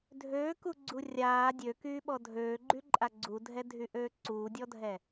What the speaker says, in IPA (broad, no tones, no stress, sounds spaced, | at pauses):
dʱ øː k u ɡ͡ǀ u rʲ aː dʲ ø k yː ɓ ɔ dʱ øː ɡ͡ǃ y ǃʼ a ɡ͡ǀ u dʱ ɛ dʱ y ʔ øː ǀ uː dʲ ɔ dʱ ɛ